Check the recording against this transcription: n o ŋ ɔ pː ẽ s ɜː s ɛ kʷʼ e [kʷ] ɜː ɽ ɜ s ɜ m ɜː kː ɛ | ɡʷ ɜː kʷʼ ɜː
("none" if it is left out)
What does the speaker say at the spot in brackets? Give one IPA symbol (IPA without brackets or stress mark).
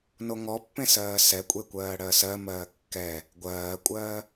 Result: kʷ